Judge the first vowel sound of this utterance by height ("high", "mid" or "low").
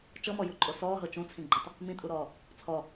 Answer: mid